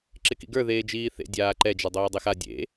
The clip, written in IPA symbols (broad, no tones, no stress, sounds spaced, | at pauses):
ǁ ɪ k ḭ ɡ ə˞ ð eː d͡ʒ iː θ ḛ dʲ aː ǃ ɛ d͡ʒ ɛ dˤ oː dˤ e x a dʲ ḛ